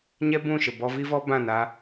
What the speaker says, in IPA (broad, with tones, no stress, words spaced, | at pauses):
ɲɛ˦bũ˦˨ʃə˨ bɔ˧vi˦vɔ˦ bã˦˨na˧